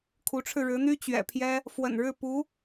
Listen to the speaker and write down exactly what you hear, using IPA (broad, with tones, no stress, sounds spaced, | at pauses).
kʰ u˧˥ ʈ͡ʂʰ ɻ̩˧ ɻ ɻ̩˧˥ n̪ y˥ t͡ɕ ɥ ɛ̰˨˩ pʰ j ɛ˥ | f w ə̰˨˩ n ɻ ɻ̩˥˩ p u˧˥